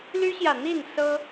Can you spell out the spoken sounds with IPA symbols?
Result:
l y˥ ɕ j ä˨ n̪ i˥˩ n s ɤ˥

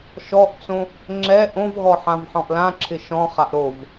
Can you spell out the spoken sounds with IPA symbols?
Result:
ʃ ɔ ʔ t͡s õ | ŋ͡ǁ ɛ ʔ õ v ɣ ɔ ħ ã v ħ ɔ̃ ʔ l ã ǁʰ ɪ ʃ ɔ̃ χ a ʔ ɾ o v

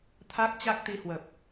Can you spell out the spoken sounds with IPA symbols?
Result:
t̪ʰ a˦˥ k̚ t͡ɕ a˦˥ k̚ t̪ i˧ h w ə˨˩ p̚

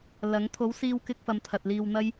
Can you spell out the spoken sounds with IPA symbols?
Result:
l ɐ˨˥ ŋ t̪ʰ o˨˥ w s iː˧ w k ɪ˧ k̚ f ɐ˨ m t̪ʰ ɐ˨ t̚ l iː˧ w n̪ ɐ˥ j

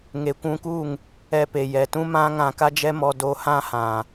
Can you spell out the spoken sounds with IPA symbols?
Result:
ŋ e˨ kʷ ũ˧ k u˦˨ ŋ | ɛ˧ p e˨ j ɛ˨ t ũ˦ m ã˦ ŋ ã˧ k a˦ d͡ʒ ɛ˦ m ɔ˧ d o˧ h ã˦ h ã˨

